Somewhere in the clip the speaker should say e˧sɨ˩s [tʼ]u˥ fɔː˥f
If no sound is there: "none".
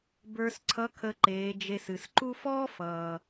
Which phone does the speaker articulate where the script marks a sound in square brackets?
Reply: ǃ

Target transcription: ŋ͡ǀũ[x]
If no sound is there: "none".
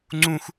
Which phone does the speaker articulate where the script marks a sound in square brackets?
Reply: x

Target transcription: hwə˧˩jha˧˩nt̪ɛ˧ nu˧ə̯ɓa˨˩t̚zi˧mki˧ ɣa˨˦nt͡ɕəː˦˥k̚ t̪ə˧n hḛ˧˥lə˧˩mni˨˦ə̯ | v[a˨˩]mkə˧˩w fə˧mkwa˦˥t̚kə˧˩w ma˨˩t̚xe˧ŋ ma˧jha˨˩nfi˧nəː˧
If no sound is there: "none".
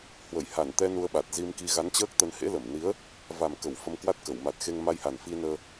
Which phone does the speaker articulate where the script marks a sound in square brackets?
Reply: a˨˩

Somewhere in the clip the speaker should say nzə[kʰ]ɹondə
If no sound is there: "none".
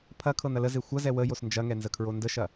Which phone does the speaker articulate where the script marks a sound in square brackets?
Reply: kʰ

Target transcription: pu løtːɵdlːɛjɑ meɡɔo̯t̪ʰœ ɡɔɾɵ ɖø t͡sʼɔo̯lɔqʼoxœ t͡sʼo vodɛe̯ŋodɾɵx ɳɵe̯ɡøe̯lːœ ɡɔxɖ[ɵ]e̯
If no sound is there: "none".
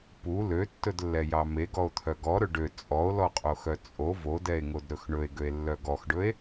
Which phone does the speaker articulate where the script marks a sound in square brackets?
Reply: ɵ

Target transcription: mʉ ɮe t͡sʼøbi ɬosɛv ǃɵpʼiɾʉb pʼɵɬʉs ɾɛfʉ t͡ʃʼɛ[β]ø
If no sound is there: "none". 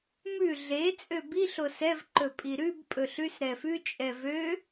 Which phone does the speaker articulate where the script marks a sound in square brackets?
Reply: v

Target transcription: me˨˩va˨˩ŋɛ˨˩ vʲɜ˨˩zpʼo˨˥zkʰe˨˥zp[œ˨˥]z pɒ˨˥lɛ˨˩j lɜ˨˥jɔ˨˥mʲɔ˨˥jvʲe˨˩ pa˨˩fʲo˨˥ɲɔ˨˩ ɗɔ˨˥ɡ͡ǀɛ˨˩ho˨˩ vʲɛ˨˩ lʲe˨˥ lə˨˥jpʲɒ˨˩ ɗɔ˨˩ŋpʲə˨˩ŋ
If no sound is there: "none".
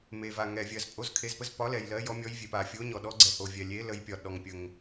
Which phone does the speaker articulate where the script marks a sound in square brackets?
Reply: ə˨˥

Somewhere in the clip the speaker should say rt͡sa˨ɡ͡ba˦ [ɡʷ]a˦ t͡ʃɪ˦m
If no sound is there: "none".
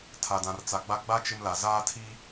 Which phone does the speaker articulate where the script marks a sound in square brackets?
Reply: ɡ͡b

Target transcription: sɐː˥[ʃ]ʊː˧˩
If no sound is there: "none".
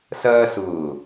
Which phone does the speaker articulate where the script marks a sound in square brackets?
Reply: s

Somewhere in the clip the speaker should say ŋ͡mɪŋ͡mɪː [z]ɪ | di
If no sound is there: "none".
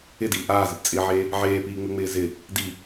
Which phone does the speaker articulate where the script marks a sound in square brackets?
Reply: z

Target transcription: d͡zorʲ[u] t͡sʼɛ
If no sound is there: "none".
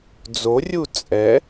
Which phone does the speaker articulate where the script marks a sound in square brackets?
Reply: u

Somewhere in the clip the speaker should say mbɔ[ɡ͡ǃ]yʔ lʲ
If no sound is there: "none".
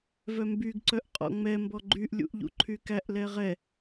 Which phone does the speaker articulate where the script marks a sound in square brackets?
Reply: ɡ͡ǃ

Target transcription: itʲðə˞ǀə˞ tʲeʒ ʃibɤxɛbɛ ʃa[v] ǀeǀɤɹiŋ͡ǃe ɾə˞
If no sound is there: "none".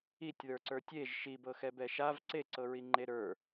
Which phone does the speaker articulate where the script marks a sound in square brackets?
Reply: v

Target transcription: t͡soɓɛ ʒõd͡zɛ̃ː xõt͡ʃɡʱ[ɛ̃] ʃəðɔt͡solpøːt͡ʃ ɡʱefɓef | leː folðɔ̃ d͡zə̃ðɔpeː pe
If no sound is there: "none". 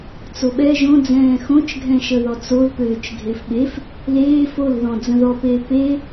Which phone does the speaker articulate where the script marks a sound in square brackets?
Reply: ɛ̃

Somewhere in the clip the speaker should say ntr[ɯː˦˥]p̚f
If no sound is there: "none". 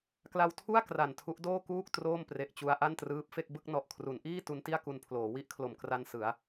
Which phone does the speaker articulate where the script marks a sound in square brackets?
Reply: ɯː˦˥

